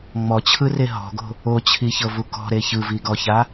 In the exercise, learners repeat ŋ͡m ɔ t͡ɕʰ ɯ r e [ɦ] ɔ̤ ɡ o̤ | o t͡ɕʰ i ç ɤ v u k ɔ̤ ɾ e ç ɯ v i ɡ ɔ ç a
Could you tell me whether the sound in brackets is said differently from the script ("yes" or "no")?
no